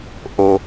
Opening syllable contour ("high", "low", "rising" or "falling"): low